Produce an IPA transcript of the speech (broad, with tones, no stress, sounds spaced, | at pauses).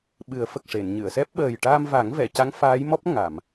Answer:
ɓ ɨ˨˩˦ ə̯ f ə˨˩ k̚ ʂ e˨˩˨ n ɲ ɨ˨˩˨ ə̯ s ɛ˦˥ p̚ ɓ əː˨˩ j ʈ aː˧ m v a˨˩˦ ŋ v ɛ˨˩˨ c a˧˥ ŋ f aː˧˥ j m ɔ˦˥ p̚ ŋ a˨˩˨ m